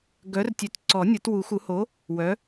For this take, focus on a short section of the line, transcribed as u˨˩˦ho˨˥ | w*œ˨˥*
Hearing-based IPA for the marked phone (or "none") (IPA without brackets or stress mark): œ˨˥